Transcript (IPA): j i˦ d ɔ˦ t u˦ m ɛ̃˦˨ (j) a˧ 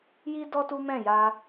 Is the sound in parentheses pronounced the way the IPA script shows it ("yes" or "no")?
yes